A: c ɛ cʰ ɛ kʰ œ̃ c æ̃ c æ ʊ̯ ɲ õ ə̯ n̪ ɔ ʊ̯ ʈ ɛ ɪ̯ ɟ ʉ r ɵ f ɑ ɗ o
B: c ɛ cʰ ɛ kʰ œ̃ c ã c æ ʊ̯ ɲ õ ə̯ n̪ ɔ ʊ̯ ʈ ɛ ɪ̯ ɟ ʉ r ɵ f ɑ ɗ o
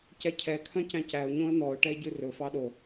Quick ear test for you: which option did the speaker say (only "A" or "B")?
A